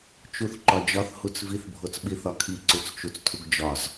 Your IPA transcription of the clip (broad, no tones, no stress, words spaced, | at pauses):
t͡ʃuθǃɒd͡ʒɒθ hut͡sviθ bʱot͡sɓiθɒkʰi ǀut͡st͡ʃut͡stʰuɡd͡ʒɒz